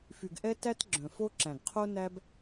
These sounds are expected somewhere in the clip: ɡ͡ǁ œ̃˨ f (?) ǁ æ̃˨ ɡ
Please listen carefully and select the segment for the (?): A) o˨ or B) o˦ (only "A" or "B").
B